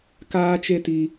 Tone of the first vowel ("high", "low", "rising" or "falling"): high